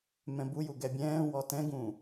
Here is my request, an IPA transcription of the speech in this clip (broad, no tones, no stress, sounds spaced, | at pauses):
m ɛ̃ b u j u ɡ ɛ bʲ ɛ̃ː w ɔ t ɛ̃ ɡ ũː